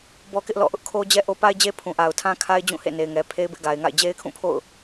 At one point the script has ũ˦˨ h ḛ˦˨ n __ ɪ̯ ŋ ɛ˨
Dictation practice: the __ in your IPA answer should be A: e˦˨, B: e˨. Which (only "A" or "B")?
B